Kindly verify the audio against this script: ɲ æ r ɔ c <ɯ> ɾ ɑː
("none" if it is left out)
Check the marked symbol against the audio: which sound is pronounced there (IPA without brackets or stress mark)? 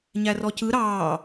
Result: ɯ